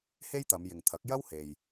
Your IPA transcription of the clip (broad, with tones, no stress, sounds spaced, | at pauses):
h e˥ j t̪ ɐ˨˧ m j ɪ˨ ŋ t̪ʰ ɐ˨˥ k̚ j ɐ˥ w h e˨ j